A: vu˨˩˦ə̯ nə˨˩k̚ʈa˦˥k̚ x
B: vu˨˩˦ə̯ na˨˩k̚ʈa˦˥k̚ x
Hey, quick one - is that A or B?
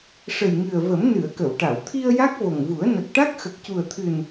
A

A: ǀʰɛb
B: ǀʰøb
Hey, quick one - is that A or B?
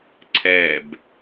A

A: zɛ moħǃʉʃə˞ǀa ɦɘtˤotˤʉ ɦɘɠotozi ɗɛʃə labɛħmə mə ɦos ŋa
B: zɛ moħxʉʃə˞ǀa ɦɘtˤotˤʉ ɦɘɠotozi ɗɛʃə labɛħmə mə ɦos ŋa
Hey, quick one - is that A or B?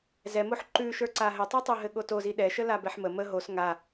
A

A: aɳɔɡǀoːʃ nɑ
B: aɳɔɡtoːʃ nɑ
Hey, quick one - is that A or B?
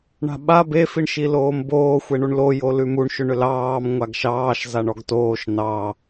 B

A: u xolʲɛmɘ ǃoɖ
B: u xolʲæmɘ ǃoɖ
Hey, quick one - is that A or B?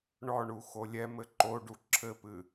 A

